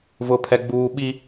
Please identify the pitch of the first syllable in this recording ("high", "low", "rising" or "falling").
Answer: high